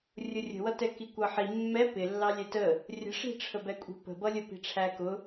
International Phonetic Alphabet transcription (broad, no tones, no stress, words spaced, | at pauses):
rʲʊrʲə̤wʌ tɛkikʷʌħi mːɛ pɪlːɑ lʲɛtə | rʲə̤ʂi̤ʈ͡ʂʰə bɛkʷʼi̤pə̤bʌ lʲəpi̤ʈ͡ʂʰækʊ